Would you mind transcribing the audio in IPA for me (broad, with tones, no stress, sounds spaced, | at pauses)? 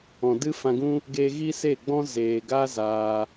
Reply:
ɔ̃˨ d ɨ˦ f ã˧ ɡ ũ˦ | ɡ e˧ ɣ i˦ s e˦˨ ɡ͡b ɔ̃˦ z eː˨ ɡ a˦ z aː˦